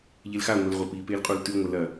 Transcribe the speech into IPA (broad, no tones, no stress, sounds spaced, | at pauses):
ʎ e l x a ŋʷ e l ʁʷ ɐ p i p e l qʼ u l t ʉ ŋʷ ɐ l ɐ